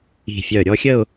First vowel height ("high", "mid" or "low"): high